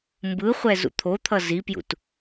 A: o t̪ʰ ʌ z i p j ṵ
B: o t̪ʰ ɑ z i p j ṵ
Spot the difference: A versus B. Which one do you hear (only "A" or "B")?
A